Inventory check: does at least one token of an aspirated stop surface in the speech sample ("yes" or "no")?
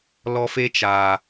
no